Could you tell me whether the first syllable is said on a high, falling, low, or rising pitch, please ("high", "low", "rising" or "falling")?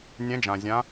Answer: rising